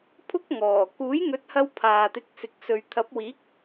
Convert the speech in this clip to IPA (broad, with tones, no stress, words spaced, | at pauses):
pʰʊ˥k̚ŋɔː˨˩ kuː˨˥jŋɵ˨˥t̚hɐ˧w pʰaː˨t̪ɪ˨˥k̚sɪ˨˥k̚ sɵ˨ɥt̪ʰɐ˨˥p̚wiː˨˥k̚